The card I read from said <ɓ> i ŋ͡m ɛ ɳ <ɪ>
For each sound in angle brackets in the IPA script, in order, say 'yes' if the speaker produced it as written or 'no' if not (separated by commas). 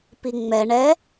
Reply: no, no